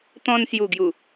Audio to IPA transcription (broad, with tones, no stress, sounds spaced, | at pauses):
t̪ ɔ̃˧ n s j u˨˩ ɡ j u˨˩